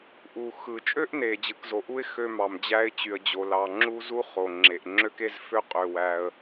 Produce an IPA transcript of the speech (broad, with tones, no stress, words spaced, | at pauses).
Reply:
ʔu˩ xɯ˩t͡ʃʼø˥ʔne˩ d͡ʑɯ˩kzo˩ʔu˥ɪ̯ xø˥mɑ˩md͡ʑæ˥ɪ̯ t͡ɕy˩ə̯d͡ʑo˩ lɑ˩ŋ͡ǁu˥ zu˥χo˩ŋ͡ǁe˩ʔ ŋ͡ǁø˥ke˥z fø˥qʼø˩wæ˩ə̯